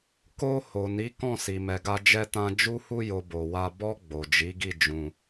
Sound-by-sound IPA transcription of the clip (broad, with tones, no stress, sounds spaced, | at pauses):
k o˧ h o˨ n i˨˦ k ɔ̃˦˨ s i˨ m ɛ˨ ɡ a˧ d͡ʒ ɛ˦ t ã˦ d͡ʒ u˧ h u˧ j o˨ b o˨ w a˧ b ɔ˧ ɡ͡b o˨ d͡ʒ i˨˦ ɡ i˦˨ d͡ʒ ũ˧